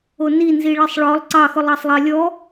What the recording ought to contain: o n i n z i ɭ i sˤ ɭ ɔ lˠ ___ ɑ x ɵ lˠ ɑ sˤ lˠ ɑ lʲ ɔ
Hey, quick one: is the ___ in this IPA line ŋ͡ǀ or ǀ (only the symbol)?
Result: ǀ